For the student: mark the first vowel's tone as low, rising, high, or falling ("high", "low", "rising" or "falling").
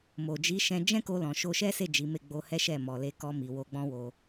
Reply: low